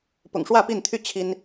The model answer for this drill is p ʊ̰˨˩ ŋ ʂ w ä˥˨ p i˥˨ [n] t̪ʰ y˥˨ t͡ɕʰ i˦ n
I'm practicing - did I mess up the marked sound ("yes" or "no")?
no